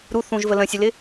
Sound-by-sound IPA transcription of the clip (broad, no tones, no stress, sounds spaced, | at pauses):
ɾ u θ ũ ʒ v ə l ə̃ sʲ ʊ l ɪ